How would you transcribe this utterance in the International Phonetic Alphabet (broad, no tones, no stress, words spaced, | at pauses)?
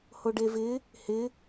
hoɖevɪ | hɪ